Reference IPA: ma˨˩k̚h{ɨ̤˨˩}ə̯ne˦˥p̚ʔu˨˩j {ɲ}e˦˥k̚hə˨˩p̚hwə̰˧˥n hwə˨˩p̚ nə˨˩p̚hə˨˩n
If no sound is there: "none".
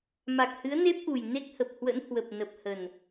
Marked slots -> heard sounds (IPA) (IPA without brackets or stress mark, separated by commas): ɨ˨˦, n